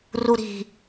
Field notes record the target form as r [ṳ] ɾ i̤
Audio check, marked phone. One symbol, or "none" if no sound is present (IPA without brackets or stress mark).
u